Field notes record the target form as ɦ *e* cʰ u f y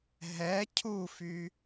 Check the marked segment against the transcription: incorrect: ɛ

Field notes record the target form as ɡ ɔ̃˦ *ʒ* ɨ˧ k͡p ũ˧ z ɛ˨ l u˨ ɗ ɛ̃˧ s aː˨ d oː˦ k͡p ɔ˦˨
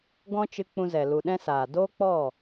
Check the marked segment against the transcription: incorrect: t͡ʃ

